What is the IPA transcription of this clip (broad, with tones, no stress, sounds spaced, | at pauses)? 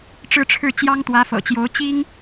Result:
ʈ͡ʂ ɻ̩˥˧ ʈ͡ʂʰ ɻ̩˥˩ t͡ɕ j ɑ˥ ŋ t̪ w ä˧˥ f ɤ̰˨˩ t͡ɕ j o˧˥ ʊ̯ t͡ɕ i˥ ŋ